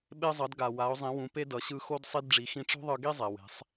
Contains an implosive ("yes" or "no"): yes